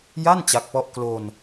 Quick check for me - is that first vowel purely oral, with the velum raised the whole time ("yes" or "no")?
yes